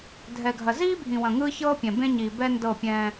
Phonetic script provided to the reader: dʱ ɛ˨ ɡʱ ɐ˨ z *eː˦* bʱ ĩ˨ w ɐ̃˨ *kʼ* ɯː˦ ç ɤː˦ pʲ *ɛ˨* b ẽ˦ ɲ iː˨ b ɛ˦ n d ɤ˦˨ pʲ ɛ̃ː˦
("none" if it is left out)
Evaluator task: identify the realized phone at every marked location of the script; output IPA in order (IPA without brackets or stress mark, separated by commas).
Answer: iː˦, ŋ, ɛ̃˨